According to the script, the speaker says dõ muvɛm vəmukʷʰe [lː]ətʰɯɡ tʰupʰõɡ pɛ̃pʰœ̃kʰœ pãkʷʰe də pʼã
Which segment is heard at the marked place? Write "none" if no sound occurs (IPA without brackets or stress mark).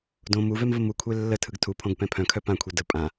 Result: lː